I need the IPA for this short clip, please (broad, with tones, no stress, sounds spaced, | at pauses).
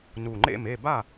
n u˨˩ ŋ͡ǃ ḛ˥˨ m e˥˨ b a˥˨